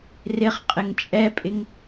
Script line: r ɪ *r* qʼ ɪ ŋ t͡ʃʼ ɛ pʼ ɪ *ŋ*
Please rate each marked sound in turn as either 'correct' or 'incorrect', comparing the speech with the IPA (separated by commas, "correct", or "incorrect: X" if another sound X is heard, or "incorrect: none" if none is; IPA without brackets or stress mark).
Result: incorrect: χ, correct